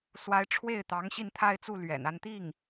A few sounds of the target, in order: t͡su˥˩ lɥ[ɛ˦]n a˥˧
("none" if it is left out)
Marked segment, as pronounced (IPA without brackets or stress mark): ɛ̰˨˩